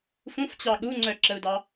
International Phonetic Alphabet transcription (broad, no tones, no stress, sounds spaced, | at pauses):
f ũ f t͡ɕ ɑ ɠ u ŋ͡ǀ œ ǁ ə u̯ d ɑ